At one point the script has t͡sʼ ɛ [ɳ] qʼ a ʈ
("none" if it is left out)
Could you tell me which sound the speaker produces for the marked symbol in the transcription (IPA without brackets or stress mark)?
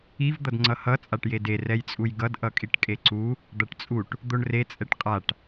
ʈ